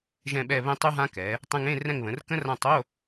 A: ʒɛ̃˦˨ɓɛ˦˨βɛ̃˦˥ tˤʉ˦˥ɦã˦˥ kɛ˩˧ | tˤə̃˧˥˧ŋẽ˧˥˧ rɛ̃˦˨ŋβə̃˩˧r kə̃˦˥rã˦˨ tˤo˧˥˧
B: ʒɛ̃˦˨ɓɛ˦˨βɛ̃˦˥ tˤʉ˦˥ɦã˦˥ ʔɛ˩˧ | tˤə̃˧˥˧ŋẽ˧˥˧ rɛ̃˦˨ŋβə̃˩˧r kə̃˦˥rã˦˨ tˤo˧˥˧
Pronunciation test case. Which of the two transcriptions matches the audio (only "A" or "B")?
A